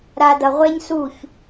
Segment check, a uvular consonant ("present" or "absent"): present